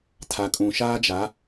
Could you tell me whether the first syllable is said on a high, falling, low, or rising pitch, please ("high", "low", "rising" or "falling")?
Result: low